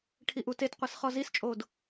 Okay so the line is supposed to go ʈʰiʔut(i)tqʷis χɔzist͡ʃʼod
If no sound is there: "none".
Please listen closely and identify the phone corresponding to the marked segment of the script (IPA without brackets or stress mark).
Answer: e